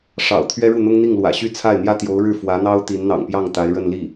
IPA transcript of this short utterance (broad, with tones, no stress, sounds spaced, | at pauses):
ʂ ɑ̰˨˩ ʊ̯ t̪ʰ ɥ ɛ˥ ɻ u˥˩ n̪ ʊ˥ ŋ n̪ i˥˩ ŋ l w ä̰˨˩ ɕ y˥˧ t͡sʰ a˥˩ ɪ̯ n̪ j ä˥ t̪ j o˧˥ ʊ̯ ɻ ɻ̩˥˩ f w ä˧˥ n̪ ɑ˥ ʊ̯ t̪ i˧˥ n n̪ ɑ̰˨˩ ŋ p j ɑ˥˩ ŋ t̪ a˧˥ ɪ̯ ɻ ə˥˧ n l i˥˩